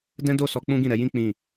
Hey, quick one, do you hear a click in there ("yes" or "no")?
no